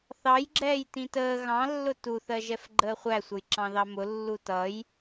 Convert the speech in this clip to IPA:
θɑjɡ͡ǁɛːj tĩtəː ɣɑ̃lːʊ tuθɜʒɛf ɡ͡ǃəːχʷæsʷəjǁɑ̃ ðɑmʊ lːutʌj

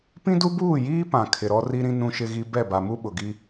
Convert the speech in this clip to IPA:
pĩ˦du˦buː˦˨jiː˦ pã˨ kʰɪ˨ɾɔ˦ ri˦ɾĩ˦ nũ˦ʃɪ˦ɣi˦ bɛ˦˨ ba˨mu˦ɓʊ˨ɡi˦

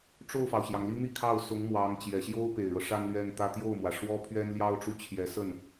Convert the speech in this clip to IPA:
ʈ͡ʂo˥˩ʊ̯fɑ˩ʊ̯ɕjɑ˩ŋli˥ n̪i˥˧kʰɑ˥˩ʊ̯ sʊ˧˥ŋmwɑ˧˥ŋ t͡ɕjɛ˨˩ɕjo˥ʊ̯ pe˨˩ɪ̯ɻɤ˦ ʂa˥nlɥɛ˥˧nt̪ä˥˧ t̪jo˥˩ʊ̯mwä˩ʂwɔ˥ pʰɥɛ˥nljɑ˥ʊ̯ʈ͡ʂu˥˩t͡ɕʰjɛ˧˥ sə˥˩n

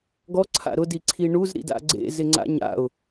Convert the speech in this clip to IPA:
ɡɔ ǀʰa̰ɾʊ diǀʰiɳuz ɾḭda̰ɡ͡ǀḛ zɪŋ͡ǀa̰ɲa̰ʊ̯

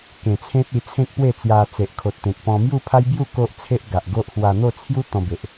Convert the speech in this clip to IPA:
kẽ˨˩t͡sʰẽ˦t̚ i˧ t͡sʰẽ˦k̚pwe˥˧ t͡sja˧ t͡se˨ʔkʰo˨t̚t̪ẽ˨k̚pɔ̃˧ mju˥˧pʰa˦jbju˥˧ ko˦ʔ t͡sʰe˦ʔɡa˨ʔɡo˦ʔhwa˧ n̪o˥˧t͡sʰju˦ t̪ɔ̃˧be˨ʔ

